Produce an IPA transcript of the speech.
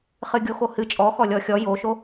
χ ɨ ɡʲ o x o h ɨ t͡ʃʼ ɔ x ɔ lʲ ɔ xʲ ɔ j o ʃ o

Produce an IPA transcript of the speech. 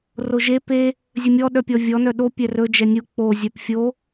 r o ʒ e p e | zʲ ɵ mʲ ɔ ɗ œ pʲ ɔ vʲ ɔ n œ ɗ o pʲ ɛ r ɵ d͡ʒ ɛ nʲ u k͡p o zʲ œ p fʲ o

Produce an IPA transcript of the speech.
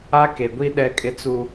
a˦ k e˨ ɡʷ i˦ ɗ ɛ˦ kʼ ɪ˦ t͡s u˦

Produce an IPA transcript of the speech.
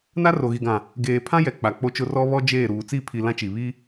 n a˦ r o˨ ɣ i˨ ɡ ã˨ | ɡ eː˨ pʰ ã˦ j ɛ˨ k͡p a˨ k͡p o˦ t͡ʃ ʊ˦ r ɔ˦ β ɔ˦ d͡ʒ eː˦˨ ɾ uː˨ t͡s i˦˨ pʰ i˨ l ã˦ t͡ʃ i˨ β i˦

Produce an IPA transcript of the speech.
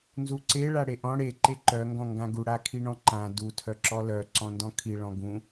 n z u ǀ e ɭ a ɽ e ʔ ɔ̃ ɽ e ǃ e ǃ œ ŋ ɡ ɔ̃ ŋ ɡ ã ɡ u ɽ a kʰ i ɳ ɔ̃ ǃ ã d u tʰ œ ǁ ɔ l œ ǀ ɔ̃ n d ɔ̃ kʰ i ɭ ɔ̃ ɡ ũ

